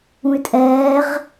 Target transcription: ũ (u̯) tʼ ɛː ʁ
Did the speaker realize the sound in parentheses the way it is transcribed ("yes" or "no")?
no